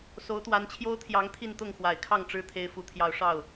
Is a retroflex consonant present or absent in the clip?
present